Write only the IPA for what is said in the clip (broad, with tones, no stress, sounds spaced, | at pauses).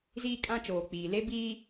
z iː˦ kʼ ã˦ t͡ʃ oː˨ k͡p iː˨ l e˦ b iː˦